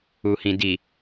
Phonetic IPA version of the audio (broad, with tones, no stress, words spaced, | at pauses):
u˨hĩ˨ di˨